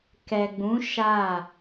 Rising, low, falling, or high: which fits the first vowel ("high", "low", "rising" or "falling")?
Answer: low